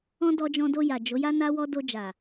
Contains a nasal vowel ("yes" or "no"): yes